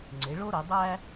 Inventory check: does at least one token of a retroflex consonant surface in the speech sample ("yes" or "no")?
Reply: yes